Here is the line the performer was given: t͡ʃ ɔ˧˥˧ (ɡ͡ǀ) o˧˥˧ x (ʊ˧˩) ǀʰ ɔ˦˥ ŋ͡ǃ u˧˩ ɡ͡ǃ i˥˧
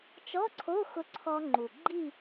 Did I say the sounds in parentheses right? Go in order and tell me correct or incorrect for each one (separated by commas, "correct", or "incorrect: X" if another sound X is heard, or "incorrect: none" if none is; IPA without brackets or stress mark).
incorrect: ǀʰ, incorrect: ʊ˦˥